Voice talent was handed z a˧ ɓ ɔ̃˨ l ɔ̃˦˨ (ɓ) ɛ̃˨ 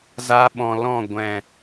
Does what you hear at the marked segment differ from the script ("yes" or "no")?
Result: yes